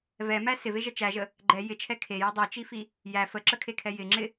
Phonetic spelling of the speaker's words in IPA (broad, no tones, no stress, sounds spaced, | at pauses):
v ɛ m æ s ɪ v e ʒ ə t͡ʃ æ ʒ ə | ɡ͡ǃ ɛ j ɪ t͡ʃʰ ɛ kʰ e j ɛ dˤ i t͡ʃ i f i | j æ f ə ǁ ə kʰ e kʰ ɛ j ɪ ŋ͡ǁ ɪ